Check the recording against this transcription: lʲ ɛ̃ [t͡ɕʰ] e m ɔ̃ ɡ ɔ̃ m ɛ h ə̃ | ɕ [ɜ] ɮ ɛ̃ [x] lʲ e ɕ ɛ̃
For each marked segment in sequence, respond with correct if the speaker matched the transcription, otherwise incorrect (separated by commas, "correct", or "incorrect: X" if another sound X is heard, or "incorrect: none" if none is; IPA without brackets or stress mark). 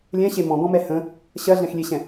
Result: incorrect: ɕ, correct, correct